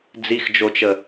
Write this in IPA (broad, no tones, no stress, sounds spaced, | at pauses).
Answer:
d͡z i x d͡ʒ o t͡ʃ ə